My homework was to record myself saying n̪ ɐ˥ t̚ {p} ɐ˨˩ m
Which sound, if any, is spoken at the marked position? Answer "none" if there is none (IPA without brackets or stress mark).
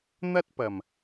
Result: p